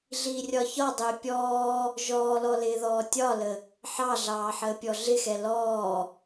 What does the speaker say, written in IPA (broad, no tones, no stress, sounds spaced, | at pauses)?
ɮ iː rʲ ɒ ç ɒ dˤ ɪː pʲ ɔː | ʒ ɔː l ɔ l ɪː ð ɔː tʲ ɒ l ə | ħ ɑ ɮ ɑː ħ əː pʲ ɔ ɮ ɪ x ɛ l ɔː